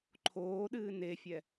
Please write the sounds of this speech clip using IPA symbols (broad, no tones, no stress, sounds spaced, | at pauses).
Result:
ǃʰ oː ɗ ɨː n e fʲ ɛ